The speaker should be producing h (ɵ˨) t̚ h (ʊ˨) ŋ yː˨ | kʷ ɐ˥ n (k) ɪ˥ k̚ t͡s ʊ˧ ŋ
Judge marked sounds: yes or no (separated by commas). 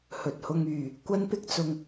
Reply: yes, no, no